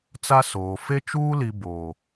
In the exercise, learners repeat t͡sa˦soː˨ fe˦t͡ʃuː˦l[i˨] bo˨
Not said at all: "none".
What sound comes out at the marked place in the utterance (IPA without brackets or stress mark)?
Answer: i˨